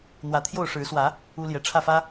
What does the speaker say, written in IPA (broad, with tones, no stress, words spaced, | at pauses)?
n̪wä˨˦t̪ʰjo˥˨ʊ̯ ʂɻ̩˨˦swä˨˦ | u˦ljɛ˨ ʈ͡ʂʰä˥˨fä˦